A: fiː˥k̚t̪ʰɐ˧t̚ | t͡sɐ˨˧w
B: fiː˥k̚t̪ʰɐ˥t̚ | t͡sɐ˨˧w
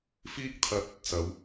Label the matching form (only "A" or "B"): A